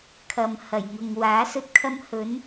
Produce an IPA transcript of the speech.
kʰ ɐ˨ m h ɐ˨˩ j ŋ ʊ˨ ŋ w aː˨˥ s ɵ˥ t̚ kʰ ɐ˥ m h ɵ˨˥ n

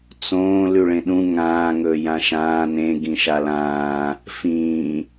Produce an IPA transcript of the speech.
t͡s õː l ʉ ɭ ẽ ɗ ũ ŋ ãː ŋ ɵː j ã ʃ ãː n ẽ ɡ ĩ ʃ a l ãː | f ĩː

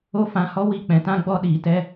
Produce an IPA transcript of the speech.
o˦ f ã˧ h ɔ˦ w i˦˨ k͡p ɛ̃˨ t ã˦ ɡ͡b ɔ˦ ɗ iː˨ t ɛ˦

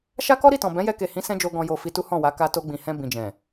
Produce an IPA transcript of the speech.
ʃ a˦ k ɔ˦ ɾ i˦˨ t ɔ̃˨ b ɛ̃˨˦ j ɛ˧ k e˨ h ĩ˨˦ s ɛ̃˦ d͡ʒ o˧ ɡ ɔ̃˨ j o˨ f i˧ t u˦ h ɔ̃˦˨ w a˨˦ k a˧ t o˧ ɡ͡b ĩ˨ h ɛ̃˧ b ĩ˨ d͡ʒ ɛ̃˨

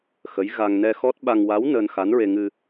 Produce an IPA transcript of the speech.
x ə˧˥ j ɣ a˧ ŋ n ɛ˧ x ɔ˦˥ t̚ ɓ a˧ ŋ w a˧˥ w n əː˧ n x a˧˥ n ɹ e˧ ŋ ɨ˧

